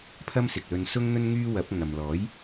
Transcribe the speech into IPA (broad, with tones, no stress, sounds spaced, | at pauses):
pʰ ɐ˥ m s ɪ˨ k̚ l ɵ˧ n s ʊ˥ ŋ n̪ ɵ˥ n ŋ yː˥ w ɐ˨˥ p̚ ŋ ɐ˨ m l ɔː˨˥ j